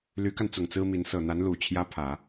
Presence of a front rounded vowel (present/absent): present